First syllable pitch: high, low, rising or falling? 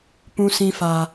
high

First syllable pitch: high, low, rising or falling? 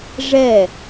falling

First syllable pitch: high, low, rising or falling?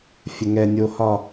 low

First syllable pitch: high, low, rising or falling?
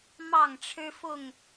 falling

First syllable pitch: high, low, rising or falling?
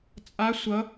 rising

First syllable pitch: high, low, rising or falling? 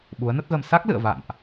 rising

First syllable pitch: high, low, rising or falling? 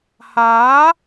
rising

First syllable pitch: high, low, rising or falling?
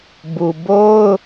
low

